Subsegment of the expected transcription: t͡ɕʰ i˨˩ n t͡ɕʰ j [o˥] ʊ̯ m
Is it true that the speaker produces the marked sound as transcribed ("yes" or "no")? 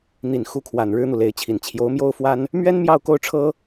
no